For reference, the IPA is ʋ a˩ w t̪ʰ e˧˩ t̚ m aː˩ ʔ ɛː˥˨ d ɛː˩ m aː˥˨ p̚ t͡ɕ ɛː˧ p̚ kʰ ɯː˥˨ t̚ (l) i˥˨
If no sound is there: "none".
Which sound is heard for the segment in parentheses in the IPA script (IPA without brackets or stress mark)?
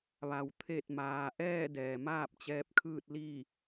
l